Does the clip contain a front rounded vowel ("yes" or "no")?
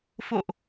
no